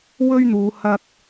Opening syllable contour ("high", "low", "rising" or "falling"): high